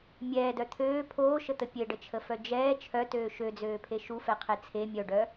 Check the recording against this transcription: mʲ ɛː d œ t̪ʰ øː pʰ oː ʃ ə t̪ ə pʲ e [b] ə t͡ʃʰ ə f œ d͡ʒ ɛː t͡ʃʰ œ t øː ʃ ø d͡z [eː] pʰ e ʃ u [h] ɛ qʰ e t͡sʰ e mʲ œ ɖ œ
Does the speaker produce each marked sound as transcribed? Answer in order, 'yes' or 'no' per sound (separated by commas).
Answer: no, no, no